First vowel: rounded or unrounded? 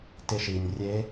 unrounded